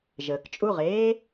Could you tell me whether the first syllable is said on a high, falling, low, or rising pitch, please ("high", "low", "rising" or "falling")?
low